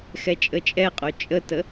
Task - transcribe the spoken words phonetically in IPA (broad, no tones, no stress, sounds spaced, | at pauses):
x ɛ t͡ʃʼ ə t͡ʃʼ ɛ qʼ o t͡ʃʼ ə t ə